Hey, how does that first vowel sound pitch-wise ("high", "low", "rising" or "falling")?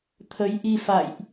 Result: rising